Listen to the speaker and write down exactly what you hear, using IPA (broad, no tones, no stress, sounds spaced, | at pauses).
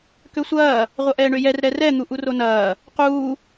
k ø sʷ ɐː | ʁʷ ɐ ʔ ɛː ɳ ø j ɛ r ɾ ɛ r ɛ n̪ u ʔ u r o n ɐː | q uː